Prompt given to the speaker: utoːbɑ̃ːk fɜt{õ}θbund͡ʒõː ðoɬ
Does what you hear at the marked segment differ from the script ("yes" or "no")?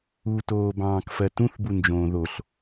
yes